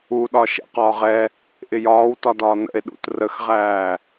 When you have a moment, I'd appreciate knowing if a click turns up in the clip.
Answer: no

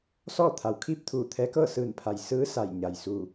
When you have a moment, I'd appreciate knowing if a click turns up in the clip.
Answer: no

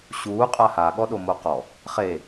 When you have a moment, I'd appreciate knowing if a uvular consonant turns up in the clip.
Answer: yes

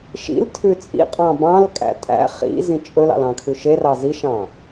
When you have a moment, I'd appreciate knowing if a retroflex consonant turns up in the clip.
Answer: no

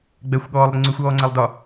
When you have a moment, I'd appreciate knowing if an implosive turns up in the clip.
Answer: yes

